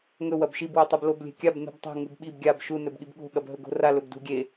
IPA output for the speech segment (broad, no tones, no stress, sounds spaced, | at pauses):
ŋ ɵ w ɐ b ʃ i b w ɵ tˤ u b l o b lʲ e̤ kʲ a b n ṳ b tˤ o̤ ŋ u b ɓ i b ɡʲ a b ʃ u n ɵ b ɠ i b ɠ o̤ ɠ ɐ b ɦ ɵ ɡ o̤ r a l ɵ b d ṳ ɡʲ e